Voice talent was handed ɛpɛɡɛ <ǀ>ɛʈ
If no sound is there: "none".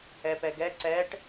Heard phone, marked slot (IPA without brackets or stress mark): ǀ